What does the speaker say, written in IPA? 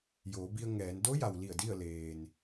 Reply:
joː˩˧bi˧ə̯ŋɛː˩˧n do˧˥ja˩wli˧˩ə̯ di˥˨ə̯leː˩n

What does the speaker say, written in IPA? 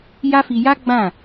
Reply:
ja˦fi˧ ja˦ ɡ͡bã˦˨

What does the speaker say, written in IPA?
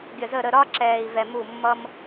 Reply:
ɡʲə˨zə˥˩ɾə˥˩ ɾɒ˥ ǁɛː˨i̯vɛ˨ mu˥˩mːʌ˥m

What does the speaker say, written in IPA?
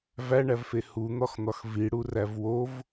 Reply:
væɳævfe hun̪ɒxn̪ɒx viɽuræv wov

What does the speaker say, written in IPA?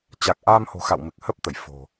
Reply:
t͡ɕa˨˩k̚ʔaː˧mho̤˨˩xa̰˧˨w mɨ˨˩k̚hə˦˥p̚t̪ə˧˩j fo̤˨˩

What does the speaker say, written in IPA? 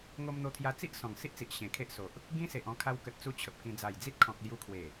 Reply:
ŋo˧mn̪o˧t̪ʰja˧ t͡si˦ʔ sɔ̃˨˩ŋsi˦ʔt͡si˨ʔ ɕẽ˨˩kʰe˦ʔso˨ʔ | ɡĩ˦se˨ʔɔ̃˧ kʰa˧wkə˨t̚t͡su˧ t͡ɕʰə˨p̚kĩ˧ d͡za˨˩jd͡zi˦t̚kʰɔ̃˨k̚ lju˧kʰwe˨˩

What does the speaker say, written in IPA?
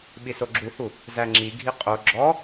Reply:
ɓisoɡ͡ǁuhu | zæŋ͡ǁiɡʱi qʼo ɡ͡ǁɔ

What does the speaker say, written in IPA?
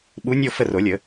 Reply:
ɓu˨˦nʲo˦˨ fə˦˨ro˨˩˦lʲə˨˩˦

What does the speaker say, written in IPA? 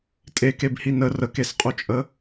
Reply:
tʼekebhi nə rəkesqʼut͡ʃʼə

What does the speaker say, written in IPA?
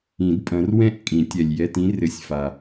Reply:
ĩ˨˩˦dpʼɐ̃˨˦rwɛ̃˥˩ʔ kʼĩ˨˩˦tʲɛ˨lʲ jɛ˧˥˧tĩ˦˥ rɘ˨˦sʲfa˨

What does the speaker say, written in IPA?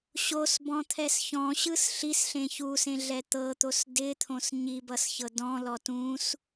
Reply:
ɕosbɔ̃t̪ʰɛs çɔ̃ɕɯs ɬisɬẽ çusẽɮɛ t̪ɤt̪os dɪt̪ʰõs ɲibʌsçɤ dɔ̃lɔ tũs

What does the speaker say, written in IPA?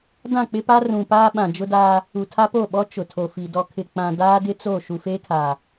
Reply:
dã˦˨k͡pɪ˦pa˦ rũ˨paː˦ ɓã˨d͡ʒʊ˦daː˦ | u˨tʰa˦po˦˨ɓɔ˦ t͡ʃʊ˨tʰo˨fi˨ dɔ˨kʰɪ˨ k͡pã˨ daː˦dɪ˦ t͡so˦˨ ʃu˨feː˦kʰaː˨

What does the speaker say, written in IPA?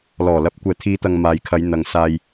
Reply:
lɔː˨˩lɐ˨˥p̚ kʷɛː˨˩t̪ʰiː˨˧t̪ɐ˨ŋ maː˨jkʰɐ˨˧j n̪ɐ˨ŋsaː˧j

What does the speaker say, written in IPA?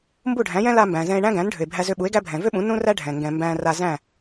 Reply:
mbu˥˩ɖʱæ̃˩˥jɛ̃˥ la˧mbæ̃˩ zɛ̃˧e̯ɳæ̃˥ ɡæ̃˩˥nɖʱʏ˩e̯bʱæ˧ zʏ˧ɓu˩˥e̯ ɡæ˥bʱɛ̃˩ vʏ˥ɓũ˩˥ nũ˥ræ˥ɖʱɛ̃˩ ŋɡɛ̃˩ mbæ̃˧ ra˧zæ̃˥˩

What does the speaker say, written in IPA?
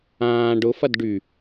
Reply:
ãː ɖʊfɐd ɖy

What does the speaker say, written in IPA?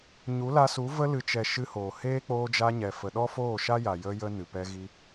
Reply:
ɲu˨˦la˧su˨˦ və˧lɨ˨t͡ʃɛ˨ ʃɨ˧hoː˨heː˦ k͡poː˧d͡ʒa˧ɲɛ˨ fə˨ɗɔ˦ foː˦˨ʃa˦ja˨ jə˧jə˧ nɨ˨pɛ˧ɣi˧

